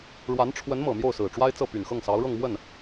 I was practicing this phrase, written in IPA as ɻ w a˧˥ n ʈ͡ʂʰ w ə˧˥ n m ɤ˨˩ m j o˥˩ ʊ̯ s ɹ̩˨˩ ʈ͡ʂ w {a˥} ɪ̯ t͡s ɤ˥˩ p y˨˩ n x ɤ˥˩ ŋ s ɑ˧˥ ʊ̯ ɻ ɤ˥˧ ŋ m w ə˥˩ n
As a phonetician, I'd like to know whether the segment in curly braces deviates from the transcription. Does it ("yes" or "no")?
no